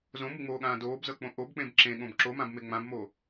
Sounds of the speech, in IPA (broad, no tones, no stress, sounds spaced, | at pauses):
z õ m u ŋ͡m oː ɠ ãː d oː b z ɤ k͡p õ ʔ o b k͡p ẽ b ǁ ẽ ɠ õ b ǁ o m ã b m e ŋ͡m ã b m o